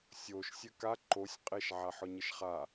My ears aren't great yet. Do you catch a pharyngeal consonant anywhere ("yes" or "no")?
yes